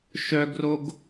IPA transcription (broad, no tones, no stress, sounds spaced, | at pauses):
ʃ œ ɡ r o ɡ